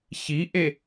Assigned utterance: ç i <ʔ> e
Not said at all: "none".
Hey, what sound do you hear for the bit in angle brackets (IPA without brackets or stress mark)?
ʔ